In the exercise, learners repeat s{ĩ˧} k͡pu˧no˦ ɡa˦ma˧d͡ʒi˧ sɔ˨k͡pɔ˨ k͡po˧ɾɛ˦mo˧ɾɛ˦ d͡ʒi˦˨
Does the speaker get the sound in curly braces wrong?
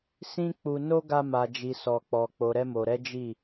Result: yes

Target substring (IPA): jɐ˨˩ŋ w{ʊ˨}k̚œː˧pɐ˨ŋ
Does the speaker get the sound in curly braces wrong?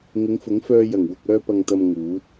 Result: no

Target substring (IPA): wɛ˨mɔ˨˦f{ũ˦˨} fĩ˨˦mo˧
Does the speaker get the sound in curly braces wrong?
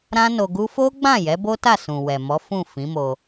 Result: no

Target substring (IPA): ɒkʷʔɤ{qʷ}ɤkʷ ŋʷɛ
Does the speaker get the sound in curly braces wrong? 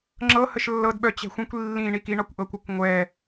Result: yes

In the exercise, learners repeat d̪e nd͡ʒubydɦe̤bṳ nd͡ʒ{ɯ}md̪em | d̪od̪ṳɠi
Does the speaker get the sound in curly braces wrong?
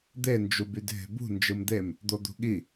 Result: no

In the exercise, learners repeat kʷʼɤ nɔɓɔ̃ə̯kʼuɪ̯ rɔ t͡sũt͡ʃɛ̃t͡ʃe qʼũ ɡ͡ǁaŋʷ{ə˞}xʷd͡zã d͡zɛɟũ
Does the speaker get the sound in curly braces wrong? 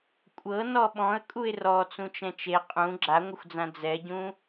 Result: yes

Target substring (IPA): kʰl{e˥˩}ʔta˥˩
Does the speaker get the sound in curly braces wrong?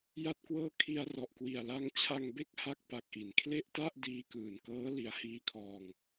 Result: no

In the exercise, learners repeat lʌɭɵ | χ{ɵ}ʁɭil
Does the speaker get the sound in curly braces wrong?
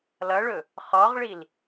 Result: yes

